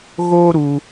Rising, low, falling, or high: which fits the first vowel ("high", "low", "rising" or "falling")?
high